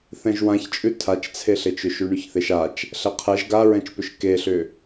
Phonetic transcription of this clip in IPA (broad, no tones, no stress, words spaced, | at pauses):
θɛ̃ʒwãçt͡ʃʼʉ tʰat͡ʃt͡sʰeɬet͡ʃʏ ʃʉɳʉçθeʃat͡ʃ | ɬɛqʰɛʒ ɡaɹɛ̃t͡ʃpʏʃ keɬʏ